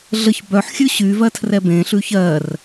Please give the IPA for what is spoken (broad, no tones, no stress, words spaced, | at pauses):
ɮəç bœħ xʲʉɕyvɜ tʰrɛbẽɬʉ çɜr